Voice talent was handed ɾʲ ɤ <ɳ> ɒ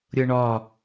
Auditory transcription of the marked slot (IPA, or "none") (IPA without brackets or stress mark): ɳ